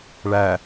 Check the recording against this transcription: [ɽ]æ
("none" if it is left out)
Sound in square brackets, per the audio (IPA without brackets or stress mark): ɭ